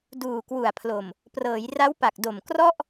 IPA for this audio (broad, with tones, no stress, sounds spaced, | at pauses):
d uː˨˩ k w u˨˩ a̯ pʰ l o˨˩ m | p r ɤː˩˦ j r a˦˥ w p a˨˩ k̚ d o˨˩ m k r ɔ˥˩ ʔ